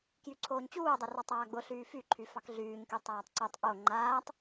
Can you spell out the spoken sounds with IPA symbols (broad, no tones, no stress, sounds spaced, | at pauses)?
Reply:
k j y ǀʰ oː ɲ t͡ɕ uː dˤ ɛ r ɔ tˤ aː ɡ͡b ʊ ɬ yː f y ǃʰ y f ɑ k ɮ yː ɲ k y tˤ aː tˤ ǀ o tˤ ʔ o ŋ͡ǃ aː tˤ